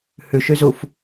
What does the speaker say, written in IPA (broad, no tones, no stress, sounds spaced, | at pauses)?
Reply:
h ʉ ʃ y z u f